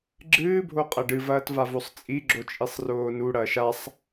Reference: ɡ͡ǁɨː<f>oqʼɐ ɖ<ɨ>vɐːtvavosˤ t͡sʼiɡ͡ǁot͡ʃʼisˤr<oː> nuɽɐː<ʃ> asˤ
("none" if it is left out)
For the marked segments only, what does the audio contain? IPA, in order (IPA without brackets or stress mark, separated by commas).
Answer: bʱ, ɨ, oː, ʃ